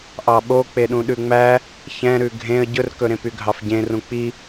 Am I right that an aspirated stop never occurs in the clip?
yes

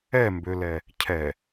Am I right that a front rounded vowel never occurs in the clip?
no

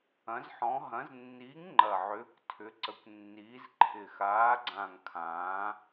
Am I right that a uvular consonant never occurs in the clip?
yes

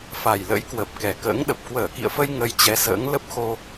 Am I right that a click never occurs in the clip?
yes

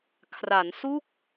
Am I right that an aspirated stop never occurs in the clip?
no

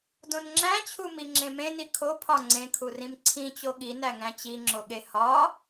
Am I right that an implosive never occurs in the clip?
no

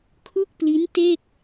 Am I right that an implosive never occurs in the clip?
yes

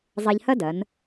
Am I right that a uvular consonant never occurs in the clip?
yes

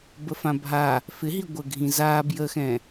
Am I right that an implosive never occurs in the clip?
yes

